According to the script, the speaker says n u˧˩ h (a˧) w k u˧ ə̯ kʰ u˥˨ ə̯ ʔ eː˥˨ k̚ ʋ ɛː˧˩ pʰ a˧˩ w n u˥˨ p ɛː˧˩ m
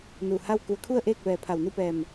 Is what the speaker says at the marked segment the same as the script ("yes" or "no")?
no